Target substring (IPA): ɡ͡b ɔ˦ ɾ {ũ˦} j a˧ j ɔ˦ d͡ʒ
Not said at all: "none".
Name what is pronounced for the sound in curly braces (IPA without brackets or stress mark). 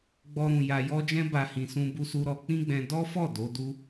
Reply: ũ˧